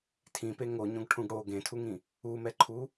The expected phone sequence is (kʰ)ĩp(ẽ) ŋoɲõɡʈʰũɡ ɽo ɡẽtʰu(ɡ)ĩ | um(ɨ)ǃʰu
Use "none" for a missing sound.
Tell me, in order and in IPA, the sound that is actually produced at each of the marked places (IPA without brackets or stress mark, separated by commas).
tʰ, e, ŋ, ɛ